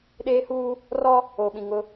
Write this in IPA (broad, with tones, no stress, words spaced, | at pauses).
ɗeː˦huː˦ | rɔ˦ | oː˨ɓĩ˨ ŋʊ˦